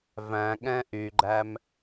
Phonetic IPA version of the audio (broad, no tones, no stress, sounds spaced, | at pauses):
v æ̃ ɠ ɛ̃ ʔ y ɡ͡ǃ æ m